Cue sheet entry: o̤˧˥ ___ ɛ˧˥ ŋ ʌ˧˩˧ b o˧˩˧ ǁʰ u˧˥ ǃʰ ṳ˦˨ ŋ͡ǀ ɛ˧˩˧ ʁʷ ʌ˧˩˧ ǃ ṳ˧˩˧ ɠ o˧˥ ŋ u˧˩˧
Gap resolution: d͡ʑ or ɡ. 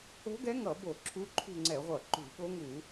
ɡ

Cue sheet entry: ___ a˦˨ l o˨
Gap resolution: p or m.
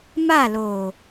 m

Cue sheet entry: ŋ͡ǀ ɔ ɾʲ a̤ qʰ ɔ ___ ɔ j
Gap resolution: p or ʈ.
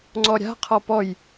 p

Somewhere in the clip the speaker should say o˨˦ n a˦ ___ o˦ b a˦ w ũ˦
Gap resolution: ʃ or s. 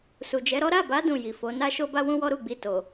ʃ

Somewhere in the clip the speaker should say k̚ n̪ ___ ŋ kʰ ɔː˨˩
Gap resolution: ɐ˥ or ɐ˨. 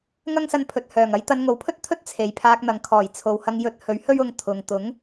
ɐ˨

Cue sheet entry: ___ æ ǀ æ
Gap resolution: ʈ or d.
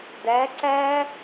d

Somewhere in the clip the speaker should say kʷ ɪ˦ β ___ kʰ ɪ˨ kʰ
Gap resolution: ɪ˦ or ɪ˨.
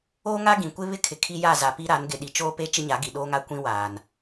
ɪ˦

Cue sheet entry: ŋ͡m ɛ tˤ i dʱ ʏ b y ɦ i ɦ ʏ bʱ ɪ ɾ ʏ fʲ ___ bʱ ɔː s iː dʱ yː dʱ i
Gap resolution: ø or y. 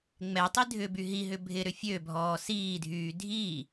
ø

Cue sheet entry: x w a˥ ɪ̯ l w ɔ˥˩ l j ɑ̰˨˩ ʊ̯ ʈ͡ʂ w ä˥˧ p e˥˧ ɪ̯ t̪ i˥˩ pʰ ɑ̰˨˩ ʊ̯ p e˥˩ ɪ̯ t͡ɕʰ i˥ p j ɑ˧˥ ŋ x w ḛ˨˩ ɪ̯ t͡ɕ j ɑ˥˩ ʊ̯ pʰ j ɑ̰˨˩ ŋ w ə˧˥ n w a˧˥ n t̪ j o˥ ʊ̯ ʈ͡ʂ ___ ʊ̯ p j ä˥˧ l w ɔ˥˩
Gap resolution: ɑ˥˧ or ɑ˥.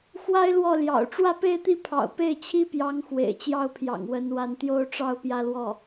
ɑ˥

